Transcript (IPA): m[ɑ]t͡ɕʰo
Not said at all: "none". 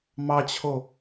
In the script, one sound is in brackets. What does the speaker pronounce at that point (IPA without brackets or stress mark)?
ɑ